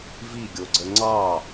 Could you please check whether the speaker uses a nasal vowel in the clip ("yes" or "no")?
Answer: no